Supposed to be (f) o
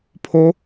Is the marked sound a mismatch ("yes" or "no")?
yes